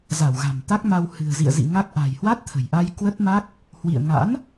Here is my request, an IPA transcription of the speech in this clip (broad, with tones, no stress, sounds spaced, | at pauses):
z a˧˩ w ɣ a̤˨˩ m t̪ a˦˥ k̚ m a˧ w h ɨ̤˨˩ ə̯ z ḭ˧˨ ə̯ z ḭ˧˨ ŋ a˦˥ k̚ ʔ a̤˨˩ j h w a˦˥ t̚ t̪ʰ ə̤˨˩ j ʔ a˧ j k w ə˦˥ t̚ m a˦˥ k̚ | h w ḭ˧˨ ə̯ ŋ a̰˧˥ n